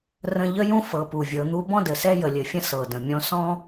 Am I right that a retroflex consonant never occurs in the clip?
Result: yes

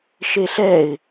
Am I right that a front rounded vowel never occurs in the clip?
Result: yes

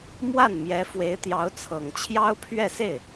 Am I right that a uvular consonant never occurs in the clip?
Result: yes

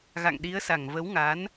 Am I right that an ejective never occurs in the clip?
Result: yes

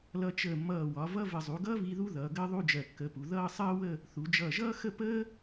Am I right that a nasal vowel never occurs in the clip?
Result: yes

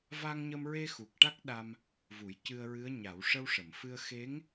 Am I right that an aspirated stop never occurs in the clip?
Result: yes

